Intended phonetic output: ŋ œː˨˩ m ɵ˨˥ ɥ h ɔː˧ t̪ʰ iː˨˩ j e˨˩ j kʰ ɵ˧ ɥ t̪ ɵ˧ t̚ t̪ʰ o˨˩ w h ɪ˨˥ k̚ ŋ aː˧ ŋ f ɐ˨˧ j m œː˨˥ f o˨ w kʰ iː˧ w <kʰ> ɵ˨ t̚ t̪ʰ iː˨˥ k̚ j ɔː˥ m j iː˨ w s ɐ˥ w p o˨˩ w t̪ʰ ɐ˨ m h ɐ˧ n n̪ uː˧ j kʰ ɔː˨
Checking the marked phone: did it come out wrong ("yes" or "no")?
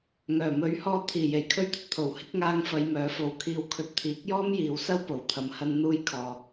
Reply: no